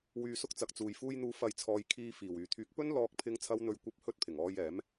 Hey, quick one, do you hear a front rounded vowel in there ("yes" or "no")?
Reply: yes